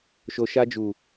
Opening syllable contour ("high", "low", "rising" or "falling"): low